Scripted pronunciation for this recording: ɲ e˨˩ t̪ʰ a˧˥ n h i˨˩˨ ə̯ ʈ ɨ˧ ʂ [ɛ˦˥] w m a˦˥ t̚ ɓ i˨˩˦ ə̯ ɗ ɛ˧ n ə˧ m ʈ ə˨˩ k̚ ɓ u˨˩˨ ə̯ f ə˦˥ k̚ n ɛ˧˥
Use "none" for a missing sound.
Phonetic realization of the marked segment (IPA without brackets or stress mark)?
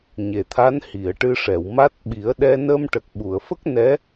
ɛ˨˩˨